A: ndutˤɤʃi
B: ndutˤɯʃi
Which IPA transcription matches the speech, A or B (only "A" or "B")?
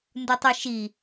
B